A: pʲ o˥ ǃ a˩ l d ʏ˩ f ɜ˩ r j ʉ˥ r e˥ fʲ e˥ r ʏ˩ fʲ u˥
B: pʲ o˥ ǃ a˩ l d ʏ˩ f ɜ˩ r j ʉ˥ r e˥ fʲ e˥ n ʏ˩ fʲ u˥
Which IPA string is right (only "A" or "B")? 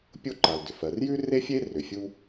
A